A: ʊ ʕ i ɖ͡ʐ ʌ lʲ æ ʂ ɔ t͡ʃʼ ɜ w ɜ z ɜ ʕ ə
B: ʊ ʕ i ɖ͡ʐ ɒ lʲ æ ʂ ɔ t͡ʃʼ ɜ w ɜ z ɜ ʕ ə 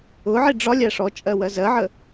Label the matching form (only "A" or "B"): B